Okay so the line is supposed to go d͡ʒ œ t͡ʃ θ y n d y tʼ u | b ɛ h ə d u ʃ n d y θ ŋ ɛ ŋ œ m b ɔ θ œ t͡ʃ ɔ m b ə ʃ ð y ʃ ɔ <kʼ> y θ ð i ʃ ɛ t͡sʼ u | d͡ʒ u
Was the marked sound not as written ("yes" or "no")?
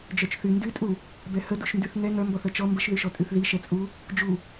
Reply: yes